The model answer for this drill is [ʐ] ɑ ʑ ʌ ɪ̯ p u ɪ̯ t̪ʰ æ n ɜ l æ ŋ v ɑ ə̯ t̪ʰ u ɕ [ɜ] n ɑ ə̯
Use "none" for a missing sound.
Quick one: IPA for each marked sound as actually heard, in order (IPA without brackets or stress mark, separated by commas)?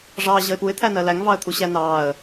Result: ʐ, æ